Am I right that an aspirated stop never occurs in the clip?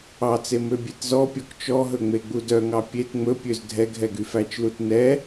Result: yes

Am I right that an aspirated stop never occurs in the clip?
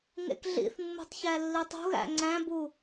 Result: yes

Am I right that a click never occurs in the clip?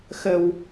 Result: yes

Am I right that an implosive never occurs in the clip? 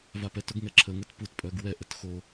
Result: yes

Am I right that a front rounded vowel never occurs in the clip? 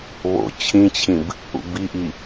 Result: yes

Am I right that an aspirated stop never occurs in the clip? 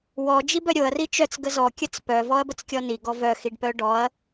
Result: yes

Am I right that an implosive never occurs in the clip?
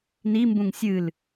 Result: yes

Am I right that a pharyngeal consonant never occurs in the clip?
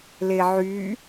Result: no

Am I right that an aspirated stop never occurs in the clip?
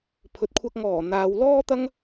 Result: no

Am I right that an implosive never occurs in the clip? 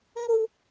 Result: yes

